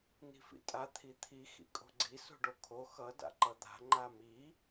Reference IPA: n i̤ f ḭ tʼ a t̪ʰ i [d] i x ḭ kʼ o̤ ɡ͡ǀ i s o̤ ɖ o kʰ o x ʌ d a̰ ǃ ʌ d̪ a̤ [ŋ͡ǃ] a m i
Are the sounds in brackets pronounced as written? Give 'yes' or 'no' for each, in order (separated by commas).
no, yes